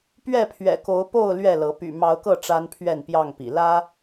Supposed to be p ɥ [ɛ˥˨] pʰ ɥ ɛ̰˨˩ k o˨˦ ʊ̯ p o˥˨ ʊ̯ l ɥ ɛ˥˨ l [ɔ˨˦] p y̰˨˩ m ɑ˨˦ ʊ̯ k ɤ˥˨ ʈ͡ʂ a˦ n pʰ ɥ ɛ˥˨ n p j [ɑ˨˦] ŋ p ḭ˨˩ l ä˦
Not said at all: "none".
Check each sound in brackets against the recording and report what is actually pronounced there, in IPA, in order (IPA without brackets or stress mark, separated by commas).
ɛ˥˨, ɤ˨˦, ɑ˥˨